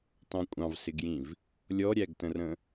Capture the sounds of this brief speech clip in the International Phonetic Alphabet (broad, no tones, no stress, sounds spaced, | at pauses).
t ɑ̃ kʷʼ ɑ̃ v s ɪ ɡ j ĩ v | lʲ ɔ ɾʲ æ ɡ t ə̃ r ə̃